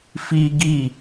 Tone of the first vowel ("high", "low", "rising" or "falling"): high